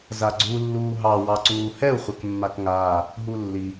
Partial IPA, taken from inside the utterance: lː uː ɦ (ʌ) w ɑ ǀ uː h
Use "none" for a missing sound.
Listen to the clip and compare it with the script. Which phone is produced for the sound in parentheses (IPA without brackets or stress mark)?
ɑ